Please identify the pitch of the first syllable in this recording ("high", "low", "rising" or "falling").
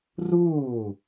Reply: falling